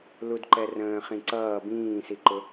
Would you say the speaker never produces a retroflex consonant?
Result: yes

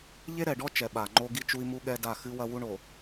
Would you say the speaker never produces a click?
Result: no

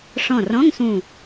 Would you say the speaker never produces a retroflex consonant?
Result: no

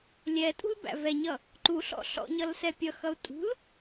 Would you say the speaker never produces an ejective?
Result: no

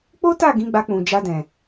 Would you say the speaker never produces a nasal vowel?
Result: no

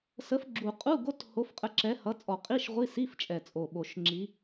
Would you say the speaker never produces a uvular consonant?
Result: no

